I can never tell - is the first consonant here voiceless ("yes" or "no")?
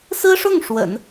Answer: yes